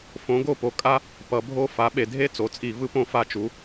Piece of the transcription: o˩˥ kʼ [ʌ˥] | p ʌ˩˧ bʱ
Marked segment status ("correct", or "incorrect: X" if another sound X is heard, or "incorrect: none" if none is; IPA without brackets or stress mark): incorrect: a˥